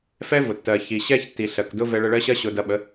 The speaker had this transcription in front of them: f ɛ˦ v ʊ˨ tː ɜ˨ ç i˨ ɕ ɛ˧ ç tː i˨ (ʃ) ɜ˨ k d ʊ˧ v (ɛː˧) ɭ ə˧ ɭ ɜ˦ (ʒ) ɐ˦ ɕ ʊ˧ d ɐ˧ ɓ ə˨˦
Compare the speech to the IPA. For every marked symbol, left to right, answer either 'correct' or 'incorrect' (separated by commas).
incorrect, incorrect, incorrect